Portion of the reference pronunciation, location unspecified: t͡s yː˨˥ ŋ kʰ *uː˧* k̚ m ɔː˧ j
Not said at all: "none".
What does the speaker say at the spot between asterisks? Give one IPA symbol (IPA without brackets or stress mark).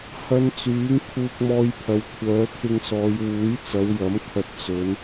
uː˧